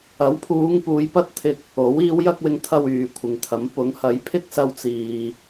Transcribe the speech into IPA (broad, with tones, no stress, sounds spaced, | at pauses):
ɐ˨˥ w pʰ uː˨˧ ŋ p uː˨˧ j p ɐ˥ t̚ t̪ʰ ɪ˧ k̚ | o˨˥ w iː˨˧ w j ɐ˧ k̚ w ɪ˨˧ ŋ t̪ʰ ɐ˧ w yː˨ kʷʰ ɪ˨ ŋ t̪ʰ ɐ˨˥ m p ʊ˨˥ ŋ h ɐ˨˥ j pʰ ɪ˥ k̚ s ɐ˧ w t͡s iː˨